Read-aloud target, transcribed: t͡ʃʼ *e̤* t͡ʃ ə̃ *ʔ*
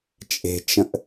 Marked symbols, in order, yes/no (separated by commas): yes, yes